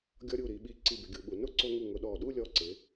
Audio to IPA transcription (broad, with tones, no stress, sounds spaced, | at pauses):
ɡʲ ɔ˧ ɾʲ u˧˩ ɾ i˩˧ ɓ i˧˩ ǀ i˧˩ b ɪ˩˧ ɡʲ u˩˧ ɓ u˩˧ n ʊ˥˧ ǀ o˧ ŋ u˧˩ ŋ ʊ˧ ɗ ɔ˧˩ ɗ u˥˧ lʲ ɔ˧˩ ǀ ɪ˩˧